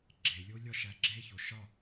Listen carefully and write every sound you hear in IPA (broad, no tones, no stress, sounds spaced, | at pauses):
ɡ͡ǁ e lʲ o lʲ ɒ ʃ æ ɡ͡ǁ e ç o ʃ ɒ